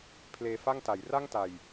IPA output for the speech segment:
pʰ l eː˧ f a˥˩ ŋ t a˩˦ j r a˥˩ ŋ t a˨˩ j

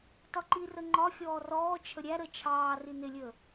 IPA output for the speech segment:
t ɒ ǃ i r ə ŋ͡ǃ ɒ xʲ ɔː r ɔː t͡ʃʰ ə ɾʲ æ ɾ ə t͡ʃʰ ɑː r i n ɪ lʲ əː

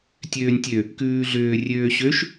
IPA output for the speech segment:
tʲ øː nʲ tʲ ø | k ʉː ɮ ʏː rʲ øː ɕ ø ʃ

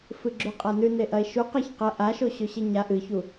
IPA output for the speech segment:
f ɨ ɡ͡ǁ ʉ qʼ a n ʉ n e ʔ ɐ e̯ ʃ u q a ç q ɐ ʔ a ʃ o ɕ ɵ ɕ e ɲ a ʔ ɨ ç u

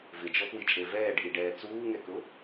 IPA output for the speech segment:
v ɪ d͡ʒ ɔ p w i t͡ʃʼ e v ɛː ɖ ʔ i ɖ ɛː t͡s uː ŋ ɛ k ʊ

